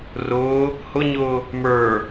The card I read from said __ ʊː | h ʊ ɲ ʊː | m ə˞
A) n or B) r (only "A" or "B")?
B